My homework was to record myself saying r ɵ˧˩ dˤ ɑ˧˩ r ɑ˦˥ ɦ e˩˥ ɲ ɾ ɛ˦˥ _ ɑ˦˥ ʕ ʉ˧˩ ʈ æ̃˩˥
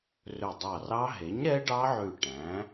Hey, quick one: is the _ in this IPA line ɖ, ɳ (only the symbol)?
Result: ɖ